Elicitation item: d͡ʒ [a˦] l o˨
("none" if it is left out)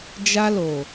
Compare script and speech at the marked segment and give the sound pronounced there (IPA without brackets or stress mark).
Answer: a˦